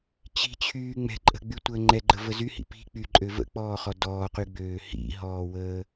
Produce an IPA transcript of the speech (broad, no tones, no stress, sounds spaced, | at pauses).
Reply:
t͡ɕ i̤ t͡ɕʰ yː ŋ͡m ɛ̤ ǃʼ ə̤ ɡ͡b y tʷ əː ŋ͡ǃ ɛ ɡ͡ǃ ə v ə z y h ḭ p i̤ k͡p y ǃʼ ø v ə̰ k͡p ɔː χ ɔ d ɔː q y ɡ͡b øː h ḭ ɦ ɔː w əː